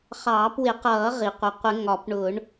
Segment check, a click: absent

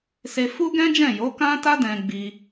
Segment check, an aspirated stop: absent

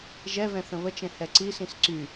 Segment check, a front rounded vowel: present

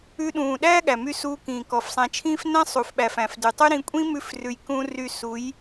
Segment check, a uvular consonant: absent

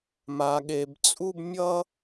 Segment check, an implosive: present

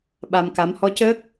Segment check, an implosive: present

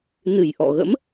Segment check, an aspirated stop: absent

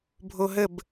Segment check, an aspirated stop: absent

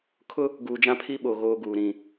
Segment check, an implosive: present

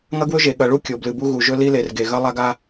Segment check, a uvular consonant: absent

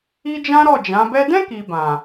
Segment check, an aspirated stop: absent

